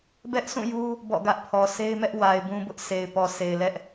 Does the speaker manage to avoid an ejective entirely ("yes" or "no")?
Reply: yes